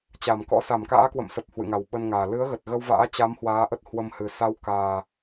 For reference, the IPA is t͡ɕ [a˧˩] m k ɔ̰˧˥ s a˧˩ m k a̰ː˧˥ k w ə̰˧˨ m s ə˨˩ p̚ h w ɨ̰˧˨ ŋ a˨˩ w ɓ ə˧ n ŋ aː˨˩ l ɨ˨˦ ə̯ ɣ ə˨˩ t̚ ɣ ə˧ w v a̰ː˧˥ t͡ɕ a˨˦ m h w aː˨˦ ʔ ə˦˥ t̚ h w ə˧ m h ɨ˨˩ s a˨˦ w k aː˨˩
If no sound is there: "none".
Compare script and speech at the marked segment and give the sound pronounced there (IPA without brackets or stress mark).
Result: a˧˩